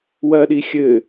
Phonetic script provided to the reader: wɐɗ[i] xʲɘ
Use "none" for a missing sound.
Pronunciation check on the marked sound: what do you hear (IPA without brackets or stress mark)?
i